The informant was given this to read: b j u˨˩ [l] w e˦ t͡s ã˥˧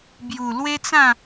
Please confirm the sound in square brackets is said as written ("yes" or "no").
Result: yes